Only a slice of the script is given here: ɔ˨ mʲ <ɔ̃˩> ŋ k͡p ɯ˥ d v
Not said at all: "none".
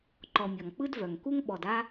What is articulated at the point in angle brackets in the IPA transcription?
ɔ˩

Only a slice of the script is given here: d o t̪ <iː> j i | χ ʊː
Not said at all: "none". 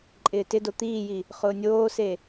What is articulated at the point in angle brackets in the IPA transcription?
iː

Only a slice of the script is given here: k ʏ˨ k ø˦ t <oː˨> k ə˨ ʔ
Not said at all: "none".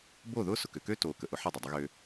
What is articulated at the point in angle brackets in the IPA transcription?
oː˨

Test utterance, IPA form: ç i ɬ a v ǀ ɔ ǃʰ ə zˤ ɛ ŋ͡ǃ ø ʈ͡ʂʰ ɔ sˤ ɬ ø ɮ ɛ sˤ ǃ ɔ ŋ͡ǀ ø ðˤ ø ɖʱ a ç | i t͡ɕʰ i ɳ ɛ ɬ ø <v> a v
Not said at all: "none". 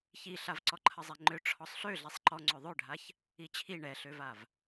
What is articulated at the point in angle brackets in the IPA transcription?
v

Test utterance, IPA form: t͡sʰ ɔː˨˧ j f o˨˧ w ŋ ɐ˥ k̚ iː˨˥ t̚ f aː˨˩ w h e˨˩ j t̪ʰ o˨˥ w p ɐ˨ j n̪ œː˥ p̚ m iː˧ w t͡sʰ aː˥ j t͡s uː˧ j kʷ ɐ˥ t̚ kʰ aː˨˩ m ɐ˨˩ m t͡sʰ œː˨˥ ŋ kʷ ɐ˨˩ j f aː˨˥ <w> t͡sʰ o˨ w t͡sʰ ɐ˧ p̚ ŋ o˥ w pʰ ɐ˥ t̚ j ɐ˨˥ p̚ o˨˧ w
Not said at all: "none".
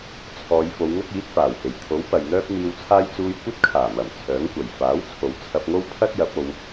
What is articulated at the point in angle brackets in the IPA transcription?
w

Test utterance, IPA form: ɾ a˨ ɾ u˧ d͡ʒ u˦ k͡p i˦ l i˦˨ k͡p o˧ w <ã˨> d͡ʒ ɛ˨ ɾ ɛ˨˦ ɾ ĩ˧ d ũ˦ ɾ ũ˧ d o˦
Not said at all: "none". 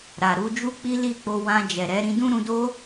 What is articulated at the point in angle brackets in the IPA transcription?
ã˧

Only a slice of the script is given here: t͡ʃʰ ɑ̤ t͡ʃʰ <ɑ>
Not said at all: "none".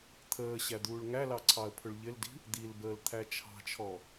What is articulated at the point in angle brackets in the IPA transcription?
ɔ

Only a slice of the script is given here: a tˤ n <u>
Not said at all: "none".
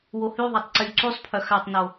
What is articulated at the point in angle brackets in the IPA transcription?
o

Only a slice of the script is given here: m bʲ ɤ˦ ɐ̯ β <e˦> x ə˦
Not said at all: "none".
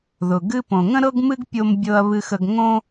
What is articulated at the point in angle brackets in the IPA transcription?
ɨ˦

